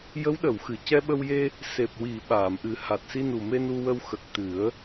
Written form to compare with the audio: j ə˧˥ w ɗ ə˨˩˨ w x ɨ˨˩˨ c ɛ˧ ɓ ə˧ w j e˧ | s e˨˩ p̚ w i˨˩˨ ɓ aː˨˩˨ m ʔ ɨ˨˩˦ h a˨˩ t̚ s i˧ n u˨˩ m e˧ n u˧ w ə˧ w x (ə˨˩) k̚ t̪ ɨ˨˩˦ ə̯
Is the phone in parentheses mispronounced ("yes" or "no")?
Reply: no